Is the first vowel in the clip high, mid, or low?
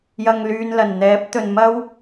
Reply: low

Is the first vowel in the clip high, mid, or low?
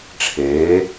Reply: mid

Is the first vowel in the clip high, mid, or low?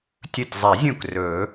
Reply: mid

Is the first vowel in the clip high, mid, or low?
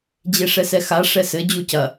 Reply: mid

